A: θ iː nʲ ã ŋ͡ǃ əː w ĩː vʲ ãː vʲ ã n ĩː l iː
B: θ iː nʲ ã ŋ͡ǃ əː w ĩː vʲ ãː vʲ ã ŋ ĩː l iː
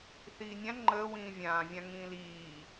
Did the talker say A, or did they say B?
B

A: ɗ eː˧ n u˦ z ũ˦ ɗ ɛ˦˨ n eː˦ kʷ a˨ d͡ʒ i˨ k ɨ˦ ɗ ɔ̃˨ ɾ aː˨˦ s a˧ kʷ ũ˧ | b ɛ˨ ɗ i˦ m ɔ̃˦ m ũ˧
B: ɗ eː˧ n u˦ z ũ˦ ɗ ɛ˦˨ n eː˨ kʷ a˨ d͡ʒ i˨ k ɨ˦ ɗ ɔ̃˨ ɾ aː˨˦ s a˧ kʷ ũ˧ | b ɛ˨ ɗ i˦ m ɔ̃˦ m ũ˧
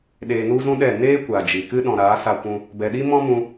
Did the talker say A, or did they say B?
A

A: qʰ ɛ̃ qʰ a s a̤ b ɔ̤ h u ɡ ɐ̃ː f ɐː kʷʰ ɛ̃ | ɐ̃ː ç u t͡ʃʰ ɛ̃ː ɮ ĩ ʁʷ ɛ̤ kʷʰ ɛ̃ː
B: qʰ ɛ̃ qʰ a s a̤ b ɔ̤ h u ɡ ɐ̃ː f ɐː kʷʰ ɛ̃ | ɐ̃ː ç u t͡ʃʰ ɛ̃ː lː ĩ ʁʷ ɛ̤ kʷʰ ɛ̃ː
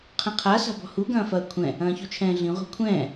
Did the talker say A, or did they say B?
A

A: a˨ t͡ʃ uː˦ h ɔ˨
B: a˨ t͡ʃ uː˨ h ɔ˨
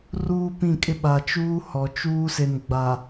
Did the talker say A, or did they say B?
A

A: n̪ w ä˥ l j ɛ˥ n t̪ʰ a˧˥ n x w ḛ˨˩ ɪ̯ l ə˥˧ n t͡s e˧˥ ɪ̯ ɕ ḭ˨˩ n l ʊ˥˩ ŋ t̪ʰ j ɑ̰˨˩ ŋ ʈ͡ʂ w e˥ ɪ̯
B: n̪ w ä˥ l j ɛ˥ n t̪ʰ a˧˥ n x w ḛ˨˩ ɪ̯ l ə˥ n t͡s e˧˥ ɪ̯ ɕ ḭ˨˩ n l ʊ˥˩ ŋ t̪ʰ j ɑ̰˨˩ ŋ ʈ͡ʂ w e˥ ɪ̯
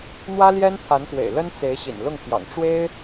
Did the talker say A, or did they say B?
B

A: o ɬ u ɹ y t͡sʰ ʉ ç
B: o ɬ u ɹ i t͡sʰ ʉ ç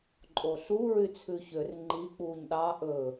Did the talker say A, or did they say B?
A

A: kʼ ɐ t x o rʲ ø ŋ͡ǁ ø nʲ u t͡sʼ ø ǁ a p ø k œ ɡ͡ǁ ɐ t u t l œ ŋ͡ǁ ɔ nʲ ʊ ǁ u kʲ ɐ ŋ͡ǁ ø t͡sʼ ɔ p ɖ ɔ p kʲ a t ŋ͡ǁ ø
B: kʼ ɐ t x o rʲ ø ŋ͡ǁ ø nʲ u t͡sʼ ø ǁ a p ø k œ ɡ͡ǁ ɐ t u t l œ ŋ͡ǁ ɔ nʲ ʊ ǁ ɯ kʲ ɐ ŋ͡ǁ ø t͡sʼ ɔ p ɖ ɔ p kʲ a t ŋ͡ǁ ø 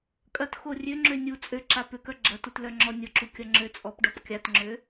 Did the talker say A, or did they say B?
A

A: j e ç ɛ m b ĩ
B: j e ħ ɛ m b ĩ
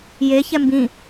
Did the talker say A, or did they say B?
A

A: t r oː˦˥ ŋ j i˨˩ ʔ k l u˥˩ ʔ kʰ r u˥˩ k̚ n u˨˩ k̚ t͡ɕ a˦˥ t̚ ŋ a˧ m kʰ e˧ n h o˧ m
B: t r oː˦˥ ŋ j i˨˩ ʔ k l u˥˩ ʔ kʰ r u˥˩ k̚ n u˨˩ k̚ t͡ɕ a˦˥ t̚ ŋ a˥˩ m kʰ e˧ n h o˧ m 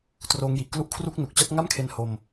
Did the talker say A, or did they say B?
B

